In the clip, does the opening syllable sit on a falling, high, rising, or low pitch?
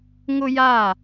high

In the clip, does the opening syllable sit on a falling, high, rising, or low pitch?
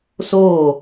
falling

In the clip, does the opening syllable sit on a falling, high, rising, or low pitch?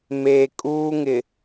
low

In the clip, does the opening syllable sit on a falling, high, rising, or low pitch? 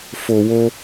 low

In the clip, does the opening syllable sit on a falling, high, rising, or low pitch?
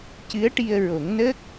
rising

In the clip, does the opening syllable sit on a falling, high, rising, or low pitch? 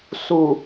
low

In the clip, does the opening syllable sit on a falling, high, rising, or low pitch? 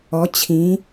rising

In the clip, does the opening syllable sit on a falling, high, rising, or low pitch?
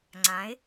rising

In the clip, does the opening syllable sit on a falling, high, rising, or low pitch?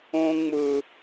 high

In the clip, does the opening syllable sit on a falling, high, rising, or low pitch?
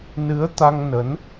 rising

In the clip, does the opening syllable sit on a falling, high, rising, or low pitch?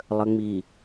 low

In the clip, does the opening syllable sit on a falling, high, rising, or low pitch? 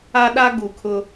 high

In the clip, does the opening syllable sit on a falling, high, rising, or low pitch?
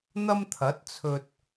high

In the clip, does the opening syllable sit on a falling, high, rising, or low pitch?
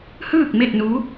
falling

